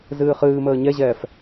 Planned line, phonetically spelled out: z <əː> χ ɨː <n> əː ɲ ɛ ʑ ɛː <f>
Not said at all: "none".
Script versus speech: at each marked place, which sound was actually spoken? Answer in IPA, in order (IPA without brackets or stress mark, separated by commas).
ɨː, m, f